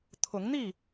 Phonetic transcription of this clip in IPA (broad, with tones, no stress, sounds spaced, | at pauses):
t̪ʰ ʊ˨˦ ŋ n̪ i˥˨